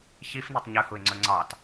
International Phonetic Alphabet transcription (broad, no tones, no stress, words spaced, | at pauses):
çifnitˤ ɲɵhuɪ̯ŋ͡ǀɵ ŋ͡ǀɑt